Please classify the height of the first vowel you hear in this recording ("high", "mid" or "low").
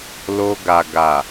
mid